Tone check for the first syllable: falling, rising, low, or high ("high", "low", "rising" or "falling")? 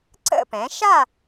falling